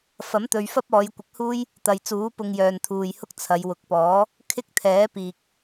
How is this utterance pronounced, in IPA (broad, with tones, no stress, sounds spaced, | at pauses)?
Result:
f ɐ˨˥ m t̪ ɵ˨ ɥ f ɐ˥ p̚ ɔː˨˧ j kʷ ɪ˨˥ k̚ h uː˥ j | t̪ ɐ˨ j t͡s uː˨˥ p ʊ˧ ŋ j œː˨ n t̪ʰ uː˨ j h ʊ˥ k̚ t͡sʰ ɐ˨˧ j w ʊ˨ k̚ p ɔː˨˥ | kʰ ɪ˥ k̚ t̪ʰ ɛː˨˥ p iː˨ k̚